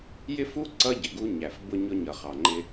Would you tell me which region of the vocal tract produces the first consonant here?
palate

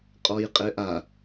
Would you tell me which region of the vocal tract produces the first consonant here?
uvula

